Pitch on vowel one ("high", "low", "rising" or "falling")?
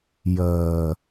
low